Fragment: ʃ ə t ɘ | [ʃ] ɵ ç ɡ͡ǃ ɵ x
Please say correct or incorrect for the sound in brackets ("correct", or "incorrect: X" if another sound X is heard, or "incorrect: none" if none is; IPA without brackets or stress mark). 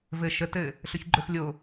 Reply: incorrect: ɬ